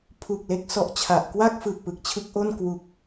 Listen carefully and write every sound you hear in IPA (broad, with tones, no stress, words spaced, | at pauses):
pʰu˨˩k̚le˦˥k̚ sɔ˦˥ʔt͡ɕʰa˨˩ʔ kwa˥˩k̚ fɯː˨˩k̚pɯ˨˩k̚t͡ɕʰɯ˦˥k̚ʔo˥˩n kwu˨˩k̚